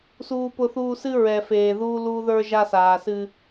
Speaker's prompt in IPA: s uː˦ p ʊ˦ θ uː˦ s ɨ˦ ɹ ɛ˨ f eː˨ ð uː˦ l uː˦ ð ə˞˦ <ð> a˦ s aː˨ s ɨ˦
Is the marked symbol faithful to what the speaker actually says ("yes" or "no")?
no